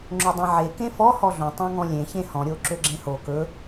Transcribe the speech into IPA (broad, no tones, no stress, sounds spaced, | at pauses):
ŋ͡ǁ ɵ dˤ ẽ ʕ e k ẽ f ɔ h ɔ ɮ õ tˤ õ ŋ ɔ̃ lʲ ẽ ç ẽ h ɔ̃ ɾʲ o ǁ ø ɡ͡ǁ ẽ h o k ɵ